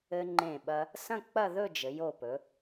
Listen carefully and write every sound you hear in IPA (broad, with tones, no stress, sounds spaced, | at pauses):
ɘ˧ ŋ͡ǃ ẽ˧˩ ɓ ɐ˧ | s ɐ̃˥˧ k͡p ɐ˥˧ ð ɵ˥˧ d͡ʒ ɘ˩˧ j o˧˩ p ɵ˩˧